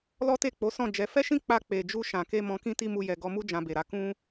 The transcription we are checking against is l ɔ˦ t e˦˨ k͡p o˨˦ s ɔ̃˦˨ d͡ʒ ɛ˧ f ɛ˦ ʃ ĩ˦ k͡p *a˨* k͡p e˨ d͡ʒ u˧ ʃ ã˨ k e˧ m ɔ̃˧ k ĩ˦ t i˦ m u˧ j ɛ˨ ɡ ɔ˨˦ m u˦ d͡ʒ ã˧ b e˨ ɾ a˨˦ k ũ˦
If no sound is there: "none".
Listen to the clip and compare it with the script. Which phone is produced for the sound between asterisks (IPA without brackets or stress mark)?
a˧